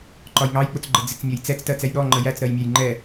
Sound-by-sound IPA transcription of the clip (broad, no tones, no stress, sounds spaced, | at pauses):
ǃ ɒ j ŋ ɑ j k͡p ʊ t͡s ɡ͡ǃ ə d͡z ɪ t͡s mʲ ʌ j t͡s ɛ t͡s t ɜ t͡s ɛ j ɗ ɔ ŋ͡ǃ ə j æ t͡s ɾ ɜ j mʲ æ j ŋ͡ǃ ɛ